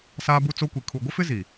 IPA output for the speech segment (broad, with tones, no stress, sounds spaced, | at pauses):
s aː˦ b u˦ t͡s o˦ kʷ i˨ kʰ u˨ ɡʷ ɪ˦ f ɪ˦ z i˨